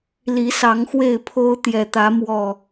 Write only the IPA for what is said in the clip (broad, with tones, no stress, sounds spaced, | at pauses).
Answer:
l i˨˦ s ɑ˨˦ ŋ x w e˥˨ ɪ̯ pʰ o˦ ʊ̯ t̪ j ɛ˨˩ t̪ ä˨˦ m w ɔ˨˩